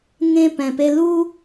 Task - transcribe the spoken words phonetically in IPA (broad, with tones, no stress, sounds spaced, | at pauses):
ŋ ẽ˧ p ɛ̃˩ p e˧ l u˥